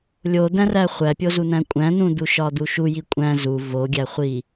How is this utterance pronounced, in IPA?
lʲ o d̪ æ̃ r æ χʷ æ pʲ o z u n̪ æ̃ kʷʼ æ̃ n̪ ũ d̪ u ʃ ɒ d̪ u ʃ u j i kʷʼ æ̃ z u v o ɡʲ æ χʷ i

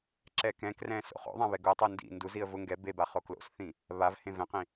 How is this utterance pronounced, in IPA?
ǁ ɛ k ɛ̃ k r ɛ̃ s o̰ χ o̰ ðˤ ã β ɛ ɡ o tˤ o n d ḭ n d u z i ə̯ v ʊ ŋ ɡ ɛ b e b a χ o k l o̰ s θ ĩ | β a v h ẽ v ɛ̃ q ĩ

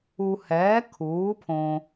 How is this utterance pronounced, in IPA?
u˧ h ɛː˨˥ kʰ uː˨˥ pʰ õ˧

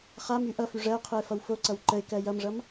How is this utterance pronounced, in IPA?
χ a m y ʔ ʌ f y ʐ ɜ ʊ̯ qʰ ɯ ɪ̯ f ʌ w f o ǀ ʌ w ǃ ə ɪ̯ k ɜ j ʌ m ʐ ʌ m

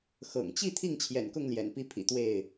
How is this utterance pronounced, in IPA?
x ɤ̰˨˩ ŋ t͡ɕ i˥˨ t̪ʰ i˥˨ ŋ t͡ɕʰ j ɛ̰˨˩ n k ʊ˥˨ ŋ l j ɛ̰˨˩ n p i˥˨ pʰ ḭ˨˩ t̪ w e˥˨ ɪ̯

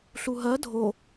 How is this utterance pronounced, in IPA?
ɬ u ɦ ɜ dʱ o

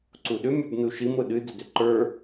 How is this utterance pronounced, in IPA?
ǀ u ɗ ʏ mʲ ə˞ b n u ʃ i m ɾ ʊ ɗ ɨ d ʏ d ʏ ǃ ə˞

